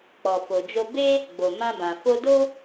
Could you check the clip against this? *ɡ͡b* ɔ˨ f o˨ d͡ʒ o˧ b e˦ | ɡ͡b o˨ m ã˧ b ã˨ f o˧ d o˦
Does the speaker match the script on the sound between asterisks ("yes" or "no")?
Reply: no